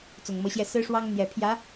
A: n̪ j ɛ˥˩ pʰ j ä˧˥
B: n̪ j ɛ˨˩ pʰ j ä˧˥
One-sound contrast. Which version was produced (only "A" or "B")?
B